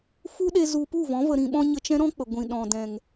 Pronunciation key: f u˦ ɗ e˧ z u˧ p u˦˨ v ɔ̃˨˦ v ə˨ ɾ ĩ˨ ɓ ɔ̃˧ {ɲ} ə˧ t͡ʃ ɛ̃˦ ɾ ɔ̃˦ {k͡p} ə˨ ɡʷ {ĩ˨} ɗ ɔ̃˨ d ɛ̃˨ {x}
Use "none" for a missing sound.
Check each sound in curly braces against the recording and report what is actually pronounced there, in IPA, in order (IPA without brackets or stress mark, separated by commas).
ɲ, k͡p, ĩ˨, ŋ